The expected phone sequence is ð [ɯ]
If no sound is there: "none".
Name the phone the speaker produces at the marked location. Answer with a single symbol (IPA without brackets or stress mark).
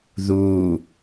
u